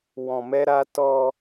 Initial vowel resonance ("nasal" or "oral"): nasal